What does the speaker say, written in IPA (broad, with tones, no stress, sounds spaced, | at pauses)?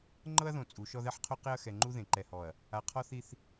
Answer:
ŋ͡ǃ ɤ˦ ɐ̯ ð õ˨ t͡sʼ u˨˦ ʃ ɔ˦ ð ɛ˦ ħ qʰ o˦ q e˦ ɐ̯ x ɛ˨ ŋ͡ǃ u˦ ð ẽ˨ ǃ ɛ˨ h ɔ˨ ɐ̯ | a˨ qʰ ɔ˦ θ i˦ θ